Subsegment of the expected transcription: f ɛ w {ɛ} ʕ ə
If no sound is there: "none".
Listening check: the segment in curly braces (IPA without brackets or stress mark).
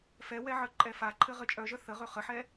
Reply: ɛ